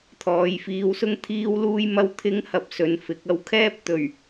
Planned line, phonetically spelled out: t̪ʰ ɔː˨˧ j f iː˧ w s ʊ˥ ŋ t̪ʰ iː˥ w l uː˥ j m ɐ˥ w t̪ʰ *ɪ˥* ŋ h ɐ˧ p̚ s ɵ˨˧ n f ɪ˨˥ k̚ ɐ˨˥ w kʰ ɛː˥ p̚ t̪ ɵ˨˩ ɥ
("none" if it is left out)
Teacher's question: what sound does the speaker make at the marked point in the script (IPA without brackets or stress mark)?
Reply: ɪ˥